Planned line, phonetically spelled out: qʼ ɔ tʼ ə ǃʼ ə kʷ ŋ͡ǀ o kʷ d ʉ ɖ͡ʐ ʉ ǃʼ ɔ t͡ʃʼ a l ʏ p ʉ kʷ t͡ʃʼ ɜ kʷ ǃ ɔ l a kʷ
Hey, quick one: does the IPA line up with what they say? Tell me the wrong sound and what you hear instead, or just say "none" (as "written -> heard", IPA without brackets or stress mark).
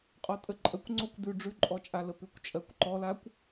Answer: ʏ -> ə